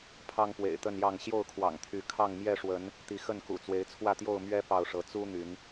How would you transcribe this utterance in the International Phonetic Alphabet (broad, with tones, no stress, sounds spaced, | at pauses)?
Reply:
pʰ ɑ˦ ŋ p w ḛ˨˩ ɪ̯ t̪ ə˥˨ n j ɑ˥˨ ŋ ɕ j o˥˨ ʊ̯ kʰ w ɑ̰˨˩ ŋ t̪ʰ y˨˦ kʰ ɑ˥˨ ŋ m j ɛ˥˨ ʂ w ə˨˦ n | t̪ i˨˦ x ə˥˨ n k ṵ˨˩ t͡s w e˨˦ ɪ̯ t͡sʰ w ä˥˨ t̪ j o˥˨ ʊ̯ m ɥ ɛ˦ p ɑ˥˨ ʊ̯ ʂ ɤ˨˦ t͡s u˦ n̪ y˨˦ n